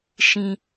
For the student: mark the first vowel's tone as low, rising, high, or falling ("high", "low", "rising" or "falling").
high